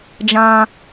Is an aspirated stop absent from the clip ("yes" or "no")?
yes